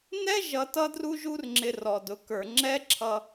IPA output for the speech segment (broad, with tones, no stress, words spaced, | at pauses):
nɛ˦ ʒʌ˧tʌ˦dru˦ ʒu˦rŋ͡ǁɪ˧rɔ˨dʊ˨˦ kə˞˨ŋ͡ǁɛ˦ǁʰʌ˧